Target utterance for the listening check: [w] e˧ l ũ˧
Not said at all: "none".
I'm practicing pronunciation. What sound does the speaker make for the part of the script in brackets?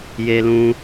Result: j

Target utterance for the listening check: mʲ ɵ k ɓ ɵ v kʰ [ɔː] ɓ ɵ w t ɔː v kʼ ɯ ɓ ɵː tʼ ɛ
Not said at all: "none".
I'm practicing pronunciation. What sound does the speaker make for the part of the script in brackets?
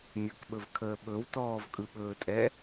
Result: əː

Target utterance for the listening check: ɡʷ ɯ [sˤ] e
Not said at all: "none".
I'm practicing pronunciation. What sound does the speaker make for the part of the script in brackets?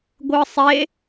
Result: sˤ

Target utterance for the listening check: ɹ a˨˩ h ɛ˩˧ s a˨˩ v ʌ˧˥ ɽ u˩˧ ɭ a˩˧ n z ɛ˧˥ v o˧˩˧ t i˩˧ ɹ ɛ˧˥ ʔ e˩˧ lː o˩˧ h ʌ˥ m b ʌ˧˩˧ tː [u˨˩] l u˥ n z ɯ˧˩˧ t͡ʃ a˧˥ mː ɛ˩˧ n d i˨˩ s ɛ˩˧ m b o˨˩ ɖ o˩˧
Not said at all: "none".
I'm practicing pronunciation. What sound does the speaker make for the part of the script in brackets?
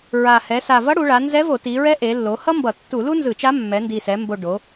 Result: u˧˩˧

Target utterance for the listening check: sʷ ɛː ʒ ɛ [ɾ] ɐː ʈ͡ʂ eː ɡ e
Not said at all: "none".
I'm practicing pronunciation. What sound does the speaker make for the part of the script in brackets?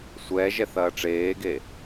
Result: θ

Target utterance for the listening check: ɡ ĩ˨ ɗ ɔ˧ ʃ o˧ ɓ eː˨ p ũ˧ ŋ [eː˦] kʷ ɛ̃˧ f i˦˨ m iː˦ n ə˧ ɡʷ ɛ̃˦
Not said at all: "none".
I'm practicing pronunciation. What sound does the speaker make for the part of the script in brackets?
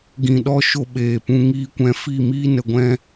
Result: iː˦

